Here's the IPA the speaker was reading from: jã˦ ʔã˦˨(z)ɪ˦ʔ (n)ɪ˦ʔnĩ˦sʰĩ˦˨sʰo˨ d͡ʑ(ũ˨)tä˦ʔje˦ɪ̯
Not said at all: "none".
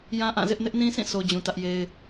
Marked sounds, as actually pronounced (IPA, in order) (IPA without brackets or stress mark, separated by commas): z, n, ũ˨